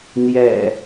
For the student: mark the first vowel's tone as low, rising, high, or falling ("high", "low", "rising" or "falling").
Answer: low